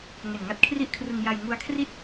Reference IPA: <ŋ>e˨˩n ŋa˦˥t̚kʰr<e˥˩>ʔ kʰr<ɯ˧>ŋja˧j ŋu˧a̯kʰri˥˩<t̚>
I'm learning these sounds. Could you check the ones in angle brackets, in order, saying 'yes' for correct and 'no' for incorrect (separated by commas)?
yes, no, yes, yes